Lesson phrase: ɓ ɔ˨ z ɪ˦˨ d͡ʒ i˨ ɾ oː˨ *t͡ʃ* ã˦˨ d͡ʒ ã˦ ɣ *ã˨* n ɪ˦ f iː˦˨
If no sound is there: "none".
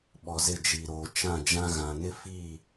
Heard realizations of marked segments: t͡ʃ, ã˨

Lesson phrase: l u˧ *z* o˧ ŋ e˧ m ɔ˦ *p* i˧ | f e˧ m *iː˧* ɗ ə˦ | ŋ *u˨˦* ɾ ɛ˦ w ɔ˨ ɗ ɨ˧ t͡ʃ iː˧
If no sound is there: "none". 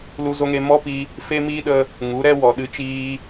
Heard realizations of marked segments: z, p, iː˧, u˨˦

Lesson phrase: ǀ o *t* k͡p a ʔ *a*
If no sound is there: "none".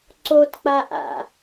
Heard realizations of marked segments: t, a̰

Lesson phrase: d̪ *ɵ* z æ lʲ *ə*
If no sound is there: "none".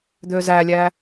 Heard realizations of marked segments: ø, æ

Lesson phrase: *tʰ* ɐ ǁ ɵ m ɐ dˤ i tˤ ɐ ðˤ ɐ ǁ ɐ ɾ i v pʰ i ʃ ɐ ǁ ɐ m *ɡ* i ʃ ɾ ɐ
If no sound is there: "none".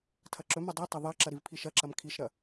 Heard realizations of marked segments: tʰ, kʰ

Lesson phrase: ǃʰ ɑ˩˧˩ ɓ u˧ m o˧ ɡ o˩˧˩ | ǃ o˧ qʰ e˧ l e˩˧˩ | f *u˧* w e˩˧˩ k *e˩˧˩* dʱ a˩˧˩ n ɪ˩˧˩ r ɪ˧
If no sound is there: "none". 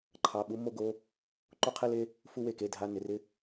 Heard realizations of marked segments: u˧, e˩˧˩

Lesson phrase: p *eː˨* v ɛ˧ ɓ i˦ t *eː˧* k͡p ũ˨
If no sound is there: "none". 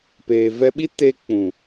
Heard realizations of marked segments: eː˨, e˧

